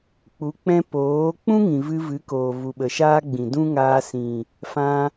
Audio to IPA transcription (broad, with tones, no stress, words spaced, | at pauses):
k͡pu˨˦k͡pɛ̃˧ poː˨˦ k͡pũ˦ŋĩ˨ vɨ˧vɨ˨˦koː˨ vu˨ɓə˨ʃaː˦ɡ͡bĩ˨ dũ˦ŋaː˧sĩ˨ | fã˧